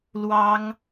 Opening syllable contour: high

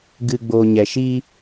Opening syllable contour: low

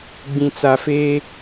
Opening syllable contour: low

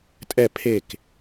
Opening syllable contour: falling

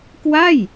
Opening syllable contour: falling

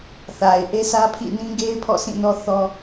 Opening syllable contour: low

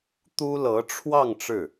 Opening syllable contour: high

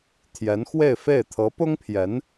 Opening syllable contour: rising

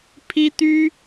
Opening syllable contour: high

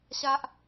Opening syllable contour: high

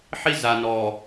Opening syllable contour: high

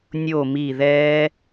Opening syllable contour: falling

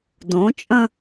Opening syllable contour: rising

